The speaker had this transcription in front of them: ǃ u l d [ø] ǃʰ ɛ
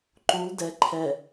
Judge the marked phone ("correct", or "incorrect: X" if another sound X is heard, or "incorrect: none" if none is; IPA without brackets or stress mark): incorrect: ɛ